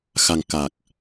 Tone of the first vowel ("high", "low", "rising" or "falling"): low